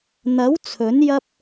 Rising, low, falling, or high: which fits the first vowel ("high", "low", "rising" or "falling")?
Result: rising